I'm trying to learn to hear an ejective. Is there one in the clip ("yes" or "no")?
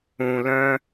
no